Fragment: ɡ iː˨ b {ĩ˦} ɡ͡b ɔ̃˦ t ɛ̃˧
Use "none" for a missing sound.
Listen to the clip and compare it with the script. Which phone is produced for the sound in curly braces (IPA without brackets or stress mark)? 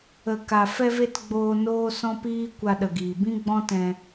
ĩ˦